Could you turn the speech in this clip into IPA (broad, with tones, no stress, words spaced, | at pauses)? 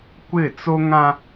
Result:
kʷɪ˦˨t͡so˦ŋã˦